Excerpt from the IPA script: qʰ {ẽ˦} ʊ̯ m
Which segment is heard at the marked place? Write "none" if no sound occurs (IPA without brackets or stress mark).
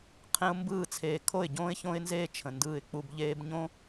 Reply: ẽ˦